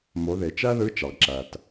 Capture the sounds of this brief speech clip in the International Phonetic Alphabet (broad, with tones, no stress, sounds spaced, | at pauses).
m o˩˧ ð e˩ t͡ʃ æ˥ ð ɯ˧˥ t͡ʃ ɑ˩ ɡ ǁ æ˩ t